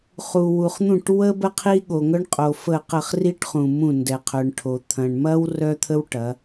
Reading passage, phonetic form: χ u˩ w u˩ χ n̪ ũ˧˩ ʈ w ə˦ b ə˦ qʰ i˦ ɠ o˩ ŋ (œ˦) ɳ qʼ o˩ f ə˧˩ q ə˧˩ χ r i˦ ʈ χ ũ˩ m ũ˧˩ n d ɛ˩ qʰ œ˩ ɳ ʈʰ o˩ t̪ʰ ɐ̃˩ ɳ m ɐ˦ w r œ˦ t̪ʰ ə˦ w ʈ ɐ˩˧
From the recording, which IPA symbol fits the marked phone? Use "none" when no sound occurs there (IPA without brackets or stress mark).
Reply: œ˦